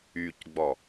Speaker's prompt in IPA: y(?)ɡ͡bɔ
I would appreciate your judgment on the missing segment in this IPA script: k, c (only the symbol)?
c